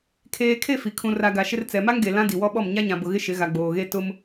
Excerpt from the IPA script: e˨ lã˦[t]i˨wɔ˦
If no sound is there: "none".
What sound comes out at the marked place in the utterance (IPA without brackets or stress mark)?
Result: d